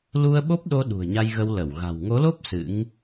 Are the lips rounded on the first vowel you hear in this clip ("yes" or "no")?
yes